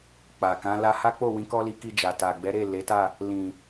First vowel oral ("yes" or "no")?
yes